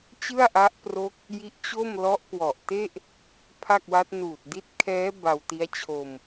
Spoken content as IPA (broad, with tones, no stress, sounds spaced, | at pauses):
t͡ɕ ɯ˥˩ a̯ ʔ a˦˥ ʔ p r o˦˥ k̚ | j i˦˥ ʔ t͡ɕ o˥˩ m l ɔ˦˥ ʔ k w ɔ˨˩ ʔ t e˥˩ ʔ | pʰ a˥˩ k̚ w a˦˥ t̚ n uː˨˩ t̚ d i˦˥ t̚ kʰ ɛː˦˥ b a˧ w t i˦˥ a̯ t͡ɕʰ o˧ m